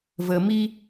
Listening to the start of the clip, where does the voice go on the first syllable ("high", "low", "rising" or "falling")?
low